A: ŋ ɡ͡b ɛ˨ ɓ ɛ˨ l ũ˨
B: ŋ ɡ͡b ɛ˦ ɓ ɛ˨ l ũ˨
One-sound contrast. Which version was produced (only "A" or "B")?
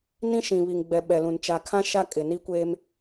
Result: A